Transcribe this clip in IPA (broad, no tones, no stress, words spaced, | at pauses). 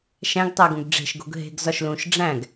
ʃæ̃ɡtˤæɡũɡ ɖ͡ʐe̤ʃɡo̤ɡ ɦe̤ɡ zɒʃlũʃ ɖ͡ʐæ̃ɡ